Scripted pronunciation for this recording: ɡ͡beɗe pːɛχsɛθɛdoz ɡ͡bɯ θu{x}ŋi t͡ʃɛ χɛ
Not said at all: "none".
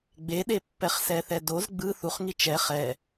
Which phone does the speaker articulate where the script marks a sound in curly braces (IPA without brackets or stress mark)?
χ